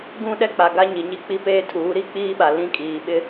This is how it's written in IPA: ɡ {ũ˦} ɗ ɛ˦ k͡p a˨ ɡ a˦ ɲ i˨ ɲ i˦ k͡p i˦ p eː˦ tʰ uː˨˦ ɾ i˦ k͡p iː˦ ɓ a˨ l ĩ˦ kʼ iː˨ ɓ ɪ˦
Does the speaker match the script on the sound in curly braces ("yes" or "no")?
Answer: yes